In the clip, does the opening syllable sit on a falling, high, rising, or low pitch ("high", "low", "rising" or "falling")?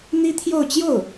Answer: high